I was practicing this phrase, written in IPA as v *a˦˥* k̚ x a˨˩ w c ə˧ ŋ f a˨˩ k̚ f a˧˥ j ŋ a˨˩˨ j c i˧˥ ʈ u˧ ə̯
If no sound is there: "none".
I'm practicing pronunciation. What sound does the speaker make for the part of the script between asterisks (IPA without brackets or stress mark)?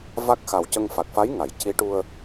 a˦˥